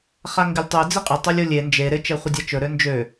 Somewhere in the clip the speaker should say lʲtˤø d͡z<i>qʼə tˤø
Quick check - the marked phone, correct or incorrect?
incorrect